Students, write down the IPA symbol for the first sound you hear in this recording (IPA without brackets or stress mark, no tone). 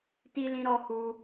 t